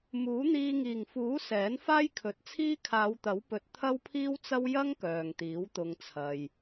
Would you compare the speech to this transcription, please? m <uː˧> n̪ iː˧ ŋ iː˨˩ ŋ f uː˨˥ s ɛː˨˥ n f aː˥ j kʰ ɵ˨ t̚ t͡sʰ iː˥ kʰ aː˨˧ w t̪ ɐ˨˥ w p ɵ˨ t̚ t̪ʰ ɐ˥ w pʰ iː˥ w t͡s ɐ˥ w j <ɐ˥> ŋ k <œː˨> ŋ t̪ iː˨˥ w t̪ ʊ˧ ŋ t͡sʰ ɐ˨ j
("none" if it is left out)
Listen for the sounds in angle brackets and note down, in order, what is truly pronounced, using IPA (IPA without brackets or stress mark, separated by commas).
uː˨˥, ɐ˥, œː˨